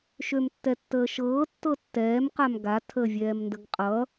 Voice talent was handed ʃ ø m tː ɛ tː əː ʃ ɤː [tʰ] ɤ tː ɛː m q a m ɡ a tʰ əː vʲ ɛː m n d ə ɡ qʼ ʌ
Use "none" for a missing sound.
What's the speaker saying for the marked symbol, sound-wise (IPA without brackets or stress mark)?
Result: tː